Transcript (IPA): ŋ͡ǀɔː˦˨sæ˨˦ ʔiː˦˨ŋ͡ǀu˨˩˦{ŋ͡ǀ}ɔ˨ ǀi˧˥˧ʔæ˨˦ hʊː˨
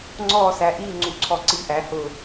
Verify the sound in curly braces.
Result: incorrect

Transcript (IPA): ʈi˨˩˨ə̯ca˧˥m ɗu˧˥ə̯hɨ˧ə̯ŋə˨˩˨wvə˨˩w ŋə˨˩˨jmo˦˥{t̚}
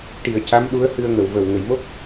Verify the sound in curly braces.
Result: incorrect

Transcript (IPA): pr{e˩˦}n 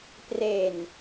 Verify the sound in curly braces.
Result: incorrect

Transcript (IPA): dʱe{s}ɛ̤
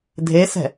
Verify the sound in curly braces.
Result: correct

